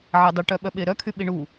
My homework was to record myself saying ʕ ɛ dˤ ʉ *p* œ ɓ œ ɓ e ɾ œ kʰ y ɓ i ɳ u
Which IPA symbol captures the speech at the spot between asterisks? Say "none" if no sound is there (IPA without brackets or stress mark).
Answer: ʈ